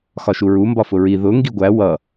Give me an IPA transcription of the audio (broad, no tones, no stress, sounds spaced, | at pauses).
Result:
x ɒ ʃ u ɹ u m b ɒ f ʊ ɹ i ð ʊ ŋ ɡ i ɡʷ æ w ʌ